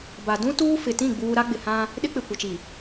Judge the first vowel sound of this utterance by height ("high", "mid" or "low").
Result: low